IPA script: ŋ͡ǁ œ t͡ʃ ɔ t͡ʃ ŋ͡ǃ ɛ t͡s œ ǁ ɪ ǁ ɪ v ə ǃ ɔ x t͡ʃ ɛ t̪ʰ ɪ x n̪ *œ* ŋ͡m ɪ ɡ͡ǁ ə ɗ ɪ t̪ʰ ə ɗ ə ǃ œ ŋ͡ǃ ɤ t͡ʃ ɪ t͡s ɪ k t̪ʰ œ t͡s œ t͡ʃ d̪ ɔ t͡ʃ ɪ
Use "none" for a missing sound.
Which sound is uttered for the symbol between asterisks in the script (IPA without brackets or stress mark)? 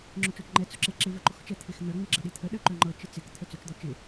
œ